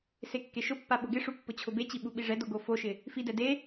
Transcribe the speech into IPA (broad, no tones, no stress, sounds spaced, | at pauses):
s e kː e ʃ ʊ pː a ɓ ʊ ɡ ɪ ʂ u pː ʊ t͡ɕʰ ʊ b e t͡ɕ i ɓ u ɓ i ʐ ɛ d o ɡ o f o ʃ ɪ | f i d ɛ d e